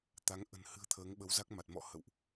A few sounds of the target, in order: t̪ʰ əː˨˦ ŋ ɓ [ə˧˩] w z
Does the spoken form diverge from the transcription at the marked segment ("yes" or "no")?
yes